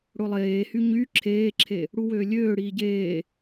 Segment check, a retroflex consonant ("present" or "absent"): present